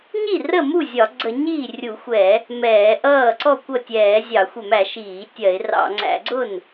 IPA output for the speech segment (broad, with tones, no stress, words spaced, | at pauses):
ɲi˥˩rə˥˩ mu˥˩ zʲɒ˧˩˧ɡ͡ǀə˧˩˧ ɲiː˥˩rʲu˧˩˧xʷɛ˧˩˧ | mɛː˧˩˧ʔʌː˥˩ ǀɔ˥˩kʷʌ˥˩tʲɛː˧˩˧ zʲɑ˧˩˧ xʷɛ˧˩˧mæ˧˩˧ ʃiː˧˩˧tʲɜ˧˩˧ɪ̯rɑ̰˧˩˧ ŋ͡ǀæ̰˧˩˧ɡ͡ǀʊ˥˩n